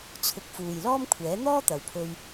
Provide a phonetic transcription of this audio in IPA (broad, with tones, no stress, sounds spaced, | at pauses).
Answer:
t͡sʰ ʊ˨ k̚ f uː˨ j l ɔː˥ m kʷʰ ɛː˨˥ n̪ ɔː˥ t̪ ɐ˨ w pʰ ɵ˧ ɥ